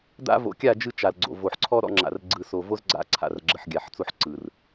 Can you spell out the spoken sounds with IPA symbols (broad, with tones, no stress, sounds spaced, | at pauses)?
d a̰˦ v o̰˨˦ kʲ a˦˨ d͡ʒ ɯ˦ t͡ʃ a˨ l ɡ͡ǀ o̰˨ v o˨ ħ ǀʰ ɔ˦ ɾ ɔ̰˦ ŋ͡ǁ a̰˨ r ɡ͡ǀ ɯ˨ s o˨ v o˦ z ɡ͡ǀ a̰˦ ǀʰ a̰˨ r ɡ͡ǁ ə˨ ħ ɡʲ a˨ ħ t͡s o˦ ħ ǀ ɯ˨ r